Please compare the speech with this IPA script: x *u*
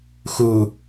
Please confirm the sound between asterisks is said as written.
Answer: yes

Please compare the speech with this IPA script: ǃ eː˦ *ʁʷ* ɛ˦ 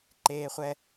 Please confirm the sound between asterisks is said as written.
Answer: no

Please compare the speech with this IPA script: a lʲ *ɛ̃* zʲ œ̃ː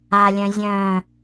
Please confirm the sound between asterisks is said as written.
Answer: no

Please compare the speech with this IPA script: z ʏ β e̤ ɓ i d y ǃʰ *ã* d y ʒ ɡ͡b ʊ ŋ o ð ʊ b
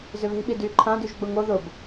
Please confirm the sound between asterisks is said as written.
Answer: yes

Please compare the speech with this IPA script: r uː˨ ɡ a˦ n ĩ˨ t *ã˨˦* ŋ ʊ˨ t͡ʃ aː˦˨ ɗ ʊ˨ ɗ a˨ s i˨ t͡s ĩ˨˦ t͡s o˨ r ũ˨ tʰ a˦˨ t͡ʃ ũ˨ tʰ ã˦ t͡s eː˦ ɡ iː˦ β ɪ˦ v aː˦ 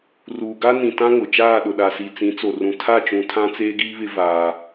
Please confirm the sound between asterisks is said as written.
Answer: no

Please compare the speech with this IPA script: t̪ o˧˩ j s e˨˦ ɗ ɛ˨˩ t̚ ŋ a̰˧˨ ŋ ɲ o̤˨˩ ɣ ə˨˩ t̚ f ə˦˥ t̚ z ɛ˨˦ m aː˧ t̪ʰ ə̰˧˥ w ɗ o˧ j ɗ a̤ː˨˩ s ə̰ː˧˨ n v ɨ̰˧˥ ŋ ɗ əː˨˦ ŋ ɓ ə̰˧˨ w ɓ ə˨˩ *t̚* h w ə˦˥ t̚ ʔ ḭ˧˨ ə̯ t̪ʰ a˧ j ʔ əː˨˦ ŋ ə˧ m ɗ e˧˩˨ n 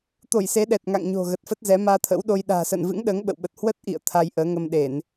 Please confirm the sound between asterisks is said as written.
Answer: yes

